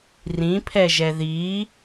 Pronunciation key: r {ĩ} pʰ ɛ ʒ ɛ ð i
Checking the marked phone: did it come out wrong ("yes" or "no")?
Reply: no